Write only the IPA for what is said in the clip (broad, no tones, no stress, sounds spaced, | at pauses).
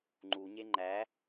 ŋ͡ǃ u ɲ e ŋ͡ǃ æ